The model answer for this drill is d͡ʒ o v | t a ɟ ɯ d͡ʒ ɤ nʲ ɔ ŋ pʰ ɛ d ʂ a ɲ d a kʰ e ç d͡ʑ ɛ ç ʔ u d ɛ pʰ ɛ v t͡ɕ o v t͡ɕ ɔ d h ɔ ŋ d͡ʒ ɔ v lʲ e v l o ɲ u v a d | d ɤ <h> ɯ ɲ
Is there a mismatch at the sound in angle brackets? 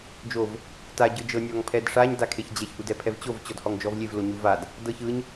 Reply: yes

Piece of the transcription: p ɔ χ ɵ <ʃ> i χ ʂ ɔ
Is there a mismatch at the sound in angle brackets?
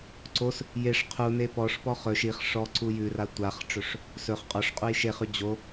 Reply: no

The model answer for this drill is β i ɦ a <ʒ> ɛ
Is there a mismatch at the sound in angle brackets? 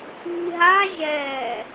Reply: no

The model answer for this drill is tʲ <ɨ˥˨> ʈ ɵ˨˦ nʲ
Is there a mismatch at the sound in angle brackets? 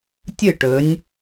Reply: no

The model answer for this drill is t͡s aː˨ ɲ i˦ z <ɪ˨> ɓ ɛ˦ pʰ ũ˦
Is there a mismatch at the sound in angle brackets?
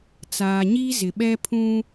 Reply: no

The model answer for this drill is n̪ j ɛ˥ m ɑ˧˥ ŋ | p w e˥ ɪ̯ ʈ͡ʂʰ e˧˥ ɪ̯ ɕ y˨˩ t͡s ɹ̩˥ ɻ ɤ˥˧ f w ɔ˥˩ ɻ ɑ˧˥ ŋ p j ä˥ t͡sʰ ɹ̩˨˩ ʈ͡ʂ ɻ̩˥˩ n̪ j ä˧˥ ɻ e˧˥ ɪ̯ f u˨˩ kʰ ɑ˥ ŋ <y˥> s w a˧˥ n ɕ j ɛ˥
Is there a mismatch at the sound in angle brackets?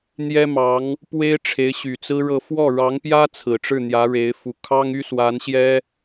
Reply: no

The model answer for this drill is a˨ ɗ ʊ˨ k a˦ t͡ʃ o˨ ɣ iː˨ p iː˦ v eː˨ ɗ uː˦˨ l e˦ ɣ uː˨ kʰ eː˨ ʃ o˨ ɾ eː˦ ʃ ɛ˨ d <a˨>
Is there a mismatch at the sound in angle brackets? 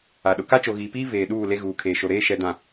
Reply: yes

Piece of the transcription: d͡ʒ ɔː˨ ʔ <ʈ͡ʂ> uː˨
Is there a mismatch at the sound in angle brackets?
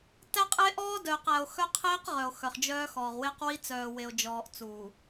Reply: yes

